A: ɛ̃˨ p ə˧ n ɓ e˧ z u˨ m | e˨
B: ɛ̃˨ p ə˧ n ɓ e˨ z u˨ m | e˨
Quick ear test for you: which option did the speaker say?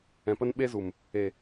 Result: A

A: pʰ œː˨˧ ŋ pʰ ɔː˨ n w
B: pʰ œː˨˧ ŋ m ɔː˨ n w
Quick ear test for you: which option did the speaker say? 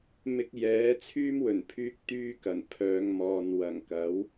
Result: B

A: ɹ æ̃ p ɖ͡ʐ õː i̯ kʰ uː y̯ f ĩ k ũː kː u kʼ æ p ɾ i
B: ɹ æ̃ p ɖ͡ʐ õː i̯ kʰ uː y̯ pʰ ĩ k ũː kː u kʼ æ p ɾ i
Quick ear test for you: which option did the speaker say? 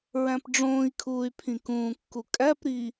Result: B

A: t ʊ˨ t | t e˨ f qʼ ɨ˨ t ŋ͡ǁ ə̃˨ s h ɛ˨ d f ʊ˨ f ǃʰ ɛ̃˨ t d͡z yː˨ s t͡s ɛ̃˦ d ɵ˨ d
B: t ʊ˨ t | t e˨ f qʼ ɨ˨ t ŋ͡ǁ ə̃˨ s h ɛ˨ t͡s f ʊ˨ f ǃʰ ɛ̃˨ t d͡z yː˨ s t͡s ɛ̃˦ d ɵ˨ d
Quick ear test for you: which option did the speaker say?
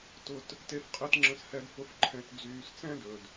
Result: A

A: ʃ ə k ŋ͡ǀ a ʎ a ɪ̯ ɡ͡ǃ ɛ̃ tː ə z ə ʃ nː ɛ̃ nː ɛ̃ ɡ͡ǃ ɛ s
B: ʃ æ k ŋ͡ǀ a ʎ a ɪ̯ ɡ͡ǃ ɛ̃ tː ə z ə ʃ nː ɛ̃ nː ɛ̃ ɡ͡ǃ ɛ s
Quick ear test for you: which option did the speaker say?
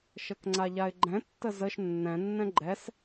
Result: A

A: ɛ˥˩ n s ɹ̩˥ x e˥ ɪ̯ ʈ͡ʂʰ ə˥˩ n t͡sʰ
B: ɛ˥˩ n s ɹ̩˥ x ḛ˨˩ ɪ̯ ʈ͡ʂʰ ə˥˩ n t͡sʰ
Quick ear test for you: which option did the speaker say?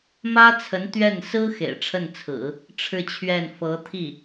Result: B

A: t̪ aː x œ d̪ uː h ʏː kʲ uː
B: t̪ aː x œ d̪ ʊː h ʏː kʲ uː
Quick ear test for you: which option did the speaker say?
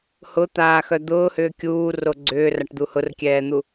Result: B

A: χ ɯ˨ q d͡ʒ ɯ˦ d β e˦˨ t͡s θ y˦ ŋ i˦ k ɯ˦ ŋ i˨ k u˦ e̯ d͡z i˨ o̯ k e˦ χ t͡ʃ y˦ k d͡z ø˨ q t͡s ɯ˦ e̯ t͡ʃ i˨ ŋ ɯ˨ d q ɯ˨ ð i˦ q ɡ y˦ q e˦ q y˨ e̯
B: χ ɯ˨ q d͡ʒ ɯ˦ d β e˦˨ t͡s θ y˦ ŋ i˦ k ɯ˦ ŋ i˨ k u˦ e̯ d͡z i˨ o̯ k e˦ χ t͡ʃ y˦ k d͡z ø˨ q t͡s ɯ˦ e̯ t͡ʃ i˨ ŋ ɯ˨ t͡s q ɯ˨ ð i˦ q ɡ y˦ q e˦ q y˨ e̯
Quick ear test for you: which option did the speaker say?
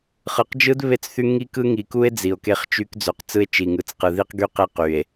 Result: B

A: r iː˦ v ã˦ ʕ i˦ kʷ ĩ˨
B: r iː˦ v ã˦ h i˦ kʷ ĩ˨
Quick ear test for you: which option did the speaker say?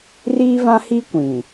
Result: B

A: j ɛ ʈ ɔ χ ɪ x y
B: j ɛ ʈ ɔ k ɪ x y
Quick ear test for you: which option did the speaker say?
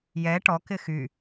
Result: B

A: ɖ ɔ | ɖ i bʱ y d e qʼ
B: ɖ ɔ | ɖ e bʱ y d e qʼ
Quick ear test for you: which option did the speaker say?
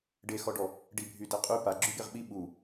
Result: A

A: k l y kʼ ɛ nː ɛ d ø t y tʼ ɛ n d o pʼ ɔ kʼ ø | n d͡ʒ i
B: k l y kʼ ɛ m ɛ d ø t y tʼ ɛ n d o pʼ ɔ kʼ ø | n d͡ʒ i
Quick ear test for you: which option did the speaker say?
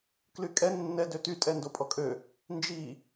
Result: A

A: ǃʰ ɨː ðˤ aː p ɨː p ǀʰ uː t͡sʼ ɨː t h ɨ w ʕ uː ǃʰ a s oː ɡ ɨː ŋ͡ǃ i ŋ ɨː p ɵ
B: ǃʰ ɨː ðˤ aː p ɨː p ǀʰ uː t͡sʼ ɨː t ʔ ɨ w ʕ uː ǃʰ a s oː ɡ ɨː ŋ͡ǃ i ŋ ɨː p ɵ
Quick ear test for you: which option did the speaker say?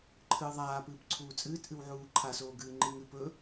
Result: B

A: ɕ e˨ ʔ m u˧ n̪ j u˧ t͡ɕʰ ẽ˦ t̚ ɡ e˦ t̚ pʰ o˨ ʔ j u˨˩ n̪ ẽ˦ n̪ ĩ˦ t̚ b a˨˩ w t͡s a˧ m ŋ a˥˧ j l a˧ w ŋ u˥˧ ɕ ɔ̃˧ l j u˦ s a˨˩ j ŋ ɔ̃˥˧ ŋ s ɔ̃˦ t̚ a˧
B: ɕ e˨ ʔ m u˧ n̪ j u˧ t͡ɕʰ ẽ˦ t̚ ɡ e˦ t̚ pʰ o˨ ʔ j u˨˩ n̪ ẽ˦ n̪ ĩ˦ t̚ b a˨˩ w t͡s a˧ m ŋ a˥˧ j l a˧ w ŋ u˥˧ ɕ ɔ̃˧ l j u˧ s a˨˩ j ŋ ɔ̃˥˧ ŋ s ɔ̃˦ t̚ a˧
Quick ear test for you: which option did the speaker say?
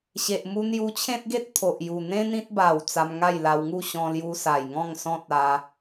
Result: B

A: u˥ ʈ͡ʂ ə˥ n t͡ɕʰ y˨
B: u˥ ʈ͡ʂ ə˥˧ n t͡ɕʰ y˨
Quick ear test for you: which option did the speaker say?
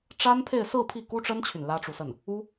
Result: A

